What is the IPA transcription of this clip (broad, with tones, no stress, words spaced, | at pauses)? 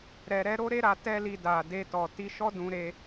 ɾɛ˧ɾɛ˦ ɾo˦ɾe˦ɾa˧ tɛ˦li˧ da˨de˧tɔ˨ ti˧ʃɔ˦ dũ˧ ɾe˧